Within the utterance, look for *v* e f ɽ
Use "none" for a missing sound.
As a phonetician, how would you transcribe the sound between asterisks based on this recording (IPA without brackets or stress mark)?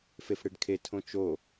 f